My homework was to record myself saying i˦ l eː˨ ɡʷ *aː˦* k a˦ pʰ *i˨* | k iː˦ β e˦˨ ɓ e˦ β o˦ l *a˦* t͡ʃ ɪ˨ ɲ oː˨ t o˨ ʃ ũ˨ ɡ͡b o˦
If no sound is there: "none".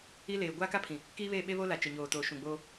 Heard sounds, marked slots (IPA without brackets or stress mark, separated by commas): aː˦, ĩ˨, a˨